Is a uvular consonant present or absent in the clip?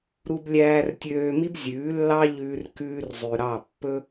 absent